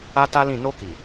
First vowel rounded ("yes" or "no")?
no